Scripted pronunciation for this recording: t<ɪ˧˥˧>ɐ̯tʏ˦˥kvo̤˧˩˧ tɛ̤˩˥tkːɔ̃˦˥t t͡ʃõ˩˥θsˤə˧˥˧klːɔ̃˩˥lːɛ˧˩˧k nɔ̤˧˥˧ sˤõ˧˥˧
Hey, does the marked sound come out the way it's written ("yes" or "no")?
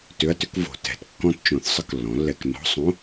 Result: no